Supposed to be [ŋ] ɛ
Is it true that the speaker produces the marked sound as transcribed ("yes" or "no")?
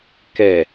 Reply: no